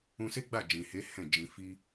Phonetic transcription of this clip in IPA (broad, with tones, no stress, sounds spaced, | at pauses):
ũ˧ s e˦ ɡ͡b a˦˨ d͡ʒ ĩ˨ h e˨˦ h ɛ̃˦˨ d͡ʒ ĩ˧ f i˦